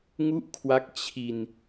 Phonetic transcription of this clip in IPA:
ŋ u˥˩ ʔ kʰ w a˦˥ k̚ t͡ɕʰ i˧ n

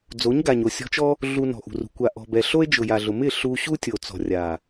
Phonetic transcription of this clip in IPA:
d͡z o˨˦ ɲ ɡ a˨ ɲ o˨ sʲ ɔ̤˧ t͡ʃ ɔ˦ | ɮ u˧ n ɔ̤˨ ʔ ṳ˨ r ṳ˨ kʷ a˨ ʔ ɔ̤˨ b ɛ˨ ɬ o˦ e̯ d͡ʒ ʊ˨ j a˨ ɮ ʊ˨ m ɪ˦˨ ɬ u˧ ɕ u˦ tʲ o˨ t͡s ɔ̤˨ rʲ a˨

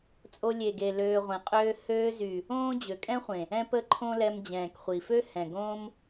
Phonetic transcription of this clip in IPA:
t͡sʼ o˧ lʲ e˨ ɡ e˨ l øː˧ ʁʷ ẽ˨ qʼ øː˦ h øː˧ z y˨ | õː˦ d͡ʑ ø˨ kʼ ɛ̃˦ χʷ ẽ˨ | ɛ̃˦ p ə˦ ǃʰ õ˦ l ɛ˧ m d͡ʑ ɛ̃ː˨ k χʷ i˨ f ø˦ h ɛ̃˨ ɡ õː˦ m

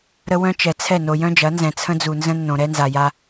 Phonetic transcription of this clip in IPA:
ɾ ə˦ w œ̃˦ t͡ʃ ɛ˨ t͡sʰ ɛ˦˨ n o˨ j œ̃˦ d͡ʒ ɐ˨˦ n z ɛ̃˨ t͡sʰ ə̃˦ d͡z u˨ n z ə̃˦ nː õ˨ ɾ ɛ˦ n z a˨ j a˦

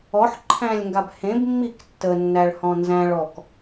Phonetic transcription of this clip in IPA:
ɔ ħ ǃʰ æ̃ lʲ ŋ ɡ a b h ẽ b mː i k tː ə nː æ ɭ h ɔ̃ n z æ̃ ɭ ɔ k

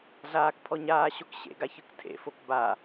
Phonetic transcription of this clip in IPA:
ɮ aː k pʰ ɔ ɲ aː ɕ o k ɕ ḛ ɡ a ç ɯ k tʰ ḛ f o k b a

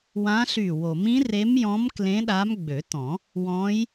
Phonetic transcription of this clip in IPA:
w ã˧˥ ɬ y˧˩ w o˨˩˦ m ĩ˧˥ r e˧˥ m j ɔ̃˧˥ m k l ẽ˧˥ ɗ a˧˥ m ɡ͡b ø˨˩˦ t ɔ̃˨˩˦ | w ɔ̃˧˥ j

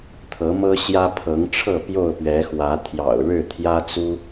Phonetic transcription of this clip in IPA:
t̪ʰ ɤ˨˦ m ɤ˦ ɕ j ä˦ pʰ ɤ˨˦ ŋ ʈ͡ʂʰ ɤ˥˨ p j o˥˨ ʊ̯ p ɥ ɛ˨˦ x w ä˨˦ t̪ʰ j ɑ̰˨˩ ʊ̯ ɻ ɻ̩˥˨ t̪ʰ j ä˦ t͡s u˦

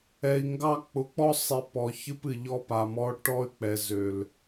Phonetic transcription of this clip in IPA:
ɛ˨ i̯ ŋ ɡ ɑ˦ k͡p ʊ˨ k͡p ɔ˦ sˤ e˨ p ɔ˨ ç ɨ˦ p ɨ˨ ʎ ɔ˦ p a˨ m ɔ˦ ʈ ɔ˦ y̯ k͡p ɛ˨ z ø˨ l

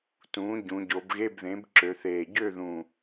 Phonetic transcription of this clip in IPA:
t ũː˩˥ ɟ ũ˩˧ ɟ o˩˧ b ɣ e˧˥˧ b ð ẽ˩˥ b ǁ ø˩˧ θ eː˨˩ ɟ ø˥˨ ð ũ˨˩

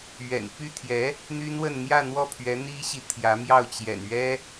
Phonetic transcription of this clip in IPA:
ɥ ɛ̰˨˩ n p y˥˩ t̪ʰ j ɛ˧˥ | n̪ y˥ n w ə˥˧ n n̪ j ä˥˧ n̪ w ɔ˥˩ pʰ ɥ ɛ˧˥ n̪ i˥ ɕ i˨ t̪ʰ j ä˧˥ m j ɑ˥˩ ʊ̯ t͡ɕ j ɛ̰˨˩ n ɥ ɛ˥

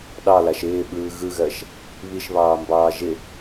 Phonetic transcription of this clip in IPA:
ɗ ɑ l a ʃ ɪː ɓ ɯː ɣ ɯ ɣ ɜ ʃ | β i ʃ β ɑː m b ɑː ʒ ɪ

